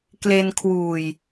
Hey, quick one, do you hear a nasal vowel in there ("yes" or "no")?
no